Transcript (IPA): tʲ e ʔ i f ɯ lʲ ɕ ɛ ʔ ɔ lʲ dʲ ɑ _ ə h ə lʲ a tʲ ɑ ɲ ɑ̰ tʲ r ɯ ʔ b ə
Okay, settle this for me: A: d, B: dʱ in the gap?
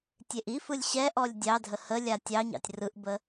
B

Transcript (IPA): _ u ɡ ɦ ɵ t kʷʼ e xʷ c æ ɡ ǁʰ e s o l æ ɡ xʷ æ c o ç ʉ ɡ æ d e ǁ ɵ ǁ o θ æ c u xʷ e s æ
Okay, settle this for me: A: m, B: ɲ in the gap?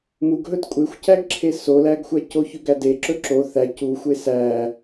A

